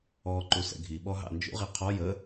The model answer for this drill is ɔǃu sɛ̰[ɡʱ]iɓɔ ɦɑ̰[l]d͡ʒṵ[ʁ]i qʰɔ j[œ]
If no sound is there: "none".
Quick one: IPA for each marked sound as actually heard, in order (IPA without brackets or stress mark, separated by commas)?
ɡʱ, n, ʁ, ə